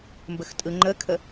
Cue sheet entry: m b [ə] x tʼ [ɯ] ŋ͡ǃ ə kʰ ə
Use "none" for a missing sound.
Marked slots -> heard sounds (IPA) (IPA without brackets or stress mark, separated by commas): ə, ɯ